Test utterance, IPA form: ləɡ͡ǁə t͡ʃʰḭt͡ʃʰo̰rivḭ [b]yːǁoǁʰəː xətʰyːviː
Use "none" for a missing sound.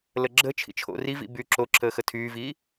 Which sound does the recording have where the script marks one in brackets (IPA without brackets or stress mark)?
b